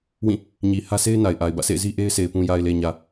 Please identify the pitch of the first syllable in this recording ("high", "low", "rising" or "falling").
falling